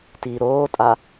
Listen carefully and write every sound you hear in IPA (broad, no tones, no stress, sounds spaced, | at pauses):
t i ɾ oː tʼ a